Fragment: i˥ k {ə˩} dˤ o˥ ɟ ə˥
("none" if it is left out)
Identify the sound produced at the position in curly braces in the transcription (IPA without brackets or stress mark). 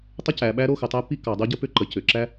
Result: ɑ˩